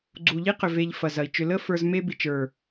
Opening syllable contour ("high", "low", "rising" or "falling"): low